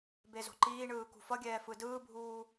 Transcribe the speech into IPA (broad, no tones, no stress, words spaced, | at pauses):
bezo̤ǃiːɳɯː kṳfʌɡʲɛː fɯdɯːbʱuː